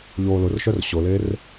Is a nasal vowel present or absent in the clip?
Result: absent